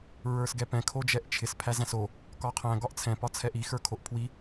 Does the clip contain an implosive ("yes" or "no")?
no